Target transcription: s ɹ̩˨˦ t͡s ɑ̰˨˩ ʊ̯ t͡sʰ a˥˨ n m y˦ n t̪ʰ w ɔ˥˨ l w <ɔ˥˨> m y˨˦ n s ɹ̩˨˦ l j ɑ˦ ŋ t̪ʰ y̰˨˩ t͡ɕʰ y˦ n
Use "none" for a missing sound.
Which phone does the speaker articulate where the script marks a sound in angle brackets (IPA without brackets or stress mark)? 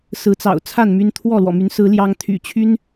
ɔ̰˨˩